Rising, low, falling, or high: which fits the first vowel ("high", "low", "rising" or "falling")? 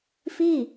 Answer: falling